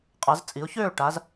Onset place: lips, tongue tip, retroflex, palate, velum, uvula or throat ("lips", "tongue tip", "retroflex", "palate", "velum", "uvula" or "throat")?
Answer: uvula